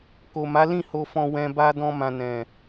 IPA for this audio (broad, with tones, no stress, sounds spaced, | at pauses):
k o˨ m a˨˦ l ĩ˦˨ h o˧ f ɔ̃˧ w ɛ̃˧ b a˦ d ɔ̃˧ m ã˨ n ɛ̃˨